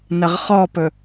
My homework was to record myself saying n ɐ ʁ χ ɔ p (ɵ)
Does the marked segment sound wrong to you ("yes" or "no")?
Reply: no